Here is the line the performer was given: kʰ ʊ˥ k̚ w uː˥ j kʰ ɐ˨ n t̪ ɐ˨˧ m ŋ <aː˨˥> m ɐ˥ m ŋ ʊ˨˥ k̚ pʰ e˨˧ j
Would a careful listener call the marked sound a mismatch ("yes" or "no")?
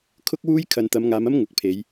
yes